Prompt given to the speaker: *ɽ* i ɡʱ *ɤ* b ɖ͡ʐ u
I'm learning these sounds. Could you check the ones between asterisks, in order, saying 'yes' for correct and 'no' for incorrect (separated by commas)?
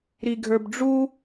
no, no